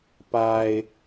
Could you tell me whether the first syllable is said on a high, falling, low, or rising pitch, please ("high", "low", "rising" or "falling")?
low